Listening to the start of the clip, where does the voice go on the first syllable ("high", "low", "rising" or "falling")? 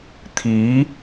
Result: rising